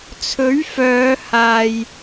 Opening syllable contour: rising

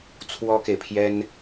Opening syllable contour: high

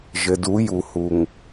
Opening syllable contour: low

